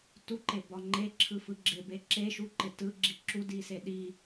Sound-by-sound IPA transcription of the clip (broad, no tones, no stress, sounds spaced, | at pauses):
t u ǃ e b ɒ ŋ͡ǃ e ǁʰ ɯ f ɯ ɡ͡ǁ ɪ b e ǁ e ʃ u ǃ ɪ t ɯ ɡ͡ǁ i ǁ u d i s e ɗ i